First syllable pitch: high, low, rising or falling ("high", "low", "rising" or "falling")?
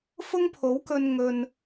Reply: high